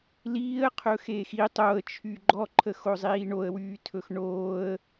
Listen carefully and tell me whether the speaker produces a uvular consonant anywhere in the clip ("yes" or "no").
yes